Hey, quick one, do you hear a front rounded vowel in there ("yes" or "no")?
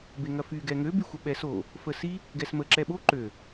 yes